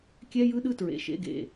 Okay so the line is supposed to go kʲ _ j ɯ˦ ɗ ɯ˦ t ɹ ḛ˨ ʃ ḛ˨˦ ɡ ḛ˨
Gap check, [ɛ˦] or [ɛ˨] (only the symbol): ɛ˦